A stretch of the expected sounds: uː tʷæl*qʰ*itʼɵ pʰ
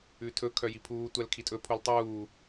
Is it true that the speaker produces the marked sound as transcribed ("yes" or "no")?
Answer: no